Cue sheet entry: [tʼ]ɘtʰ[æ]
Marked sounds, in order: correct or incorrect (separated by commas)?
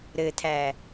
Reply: incorrect, correct